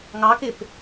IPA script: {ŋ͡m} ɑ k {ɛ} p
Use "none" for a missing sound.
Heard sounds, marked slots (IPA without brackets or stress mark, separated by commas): ŋ, ɪ